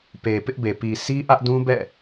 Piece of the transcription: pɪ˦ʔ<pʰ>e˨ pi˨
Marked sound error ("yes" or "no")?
yes